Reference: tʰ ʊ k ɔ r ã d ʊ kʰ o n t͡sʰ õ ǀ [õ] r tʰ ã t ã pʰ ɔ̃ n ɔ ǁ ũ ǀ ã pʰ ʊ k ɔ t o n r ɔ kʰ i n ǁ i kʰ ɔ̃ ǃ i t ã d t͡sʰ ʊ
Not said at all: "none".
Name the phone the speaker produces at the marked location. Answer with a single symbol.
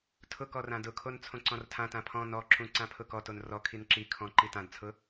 ɔ̃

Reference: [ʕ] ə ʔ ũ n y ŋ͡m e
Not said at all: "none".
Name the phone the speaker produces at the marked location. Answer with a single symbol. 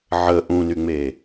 ʕ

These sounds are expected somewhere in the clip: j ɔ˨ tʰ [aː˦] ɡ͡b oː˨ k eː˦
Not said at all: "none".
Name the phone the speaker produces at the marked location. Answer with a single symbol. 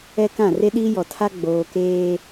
a˦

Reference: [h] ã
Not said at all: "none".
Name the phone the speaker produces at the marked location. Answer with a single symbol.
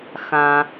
x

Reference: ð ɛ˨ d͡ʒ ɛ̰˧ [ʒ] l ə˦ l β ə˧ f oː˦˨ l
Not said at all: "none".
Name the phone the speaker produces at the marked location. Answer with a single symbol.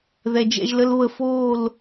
ʒ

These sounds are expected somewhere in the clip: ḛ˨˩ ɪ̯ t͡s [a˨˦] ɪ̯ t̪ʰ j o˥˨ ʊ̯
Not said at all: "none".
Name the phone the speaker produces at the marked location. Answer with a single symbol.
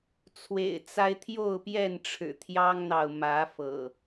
a˦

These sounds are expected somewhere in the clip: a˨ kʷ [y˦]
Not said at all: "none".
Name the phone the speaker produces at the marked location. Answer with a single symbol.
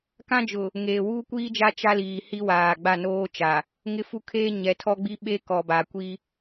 i˦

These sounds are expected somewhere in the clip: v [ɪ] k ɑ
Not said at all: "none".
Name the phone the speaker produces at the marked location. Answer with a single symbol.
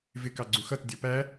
ɪ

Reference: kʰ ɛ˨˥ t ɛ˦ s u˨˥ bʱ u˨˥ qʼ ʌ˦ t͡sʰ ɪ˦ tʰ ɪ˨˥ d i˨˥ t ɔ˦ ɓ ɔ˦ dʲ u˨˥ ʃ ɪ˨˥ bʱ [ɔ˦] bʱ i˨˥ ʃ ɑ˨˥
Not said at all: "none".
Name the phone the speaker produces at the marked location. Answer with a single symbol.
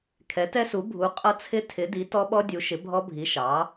ɔ˦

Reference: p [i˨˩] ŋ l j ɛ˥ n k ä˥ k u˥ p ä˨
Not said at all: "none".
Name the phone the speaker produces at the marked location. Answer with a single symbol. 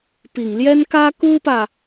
i˨˩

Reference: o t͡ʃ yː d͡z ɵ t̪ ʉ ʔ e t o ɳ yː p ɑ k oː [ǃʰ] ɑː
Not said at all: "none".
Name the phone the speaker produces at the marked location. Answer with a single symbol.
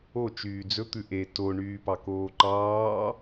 ǃ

